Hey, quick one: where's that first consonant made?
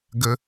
velum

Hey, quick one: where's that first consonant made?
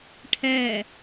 retroflex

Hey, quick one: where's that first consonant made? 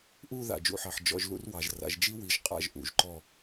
throat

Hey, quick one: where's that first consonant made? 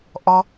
throat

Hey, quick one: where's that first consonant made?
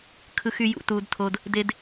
velum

